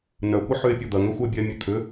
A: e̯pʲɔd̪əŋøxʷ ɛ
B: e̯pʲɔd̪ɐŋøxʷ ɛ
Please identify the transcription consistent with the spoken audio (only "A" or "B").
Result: B